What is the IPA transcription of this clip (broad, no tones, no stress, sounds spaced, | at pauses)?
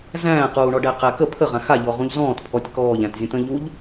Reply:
z æ̃ː q uː ɳ ɔ ɖ æ q æ k ə pʰ ə ʁ ã x a ʎ ɔ ʁ ũ ʎ z ɔ̃ː t pʰ ɔ tʲ k ɔː ʎ æ̃ t zʲ ə̃ t̪ ə̃ ʎ u ʎ